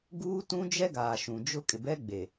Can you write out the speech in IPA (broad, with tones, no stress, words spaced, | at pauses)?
ɡuː˦ tũ˦d͡ʒɛ˦ɡaː˨ ʃũ˨d͡ʒʊ˦ kʼɪ˨bɛ˦ɡ͡be˨